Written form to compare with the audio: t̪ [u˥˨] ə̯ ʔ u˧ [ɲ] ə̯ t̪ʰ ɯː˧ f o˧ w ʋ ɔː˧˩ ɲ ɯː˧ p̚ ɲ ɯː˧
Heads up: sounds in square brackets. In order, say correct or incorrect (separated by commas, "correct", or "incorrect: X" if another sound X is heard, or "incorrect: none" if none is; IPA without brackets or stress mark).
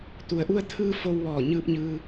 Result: incorrect: u˩, incorrect: none